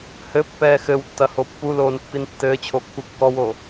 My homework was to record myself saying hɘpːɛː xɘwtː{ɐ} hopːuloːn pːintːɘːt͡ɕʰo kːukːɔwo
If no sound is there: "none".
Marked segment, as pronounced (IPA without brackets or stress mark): ɐ